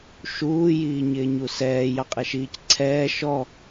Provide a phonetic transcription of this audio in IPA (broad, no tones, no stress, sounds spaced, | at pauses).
ʃ uː j iː ɲ ɪː ɲ u s ɛː j ɑ qʼ ɛ ʃ iː c ǀʰ ɛː ʃ ɔ